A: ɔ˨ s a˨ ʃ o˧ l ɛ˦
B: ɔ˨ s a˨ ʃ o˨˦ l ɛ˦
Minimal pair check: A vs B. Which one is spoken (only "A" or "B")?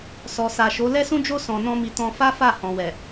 B